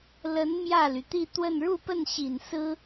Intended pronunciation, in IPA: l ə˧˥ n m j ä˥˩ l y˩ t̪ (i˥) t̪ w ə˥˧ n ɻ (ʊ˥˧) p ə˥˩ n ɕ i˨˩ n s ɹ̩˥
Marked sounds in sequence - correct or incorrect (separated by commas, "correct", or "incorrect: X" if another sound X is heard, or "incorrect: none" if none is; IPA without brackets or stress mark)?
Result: incorrect: i˥˧, incorrect: u˥˧